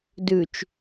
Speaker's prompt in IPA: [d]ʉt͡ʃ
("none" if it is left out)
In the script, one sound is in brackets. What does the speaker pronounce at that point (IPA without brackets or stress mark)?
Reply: d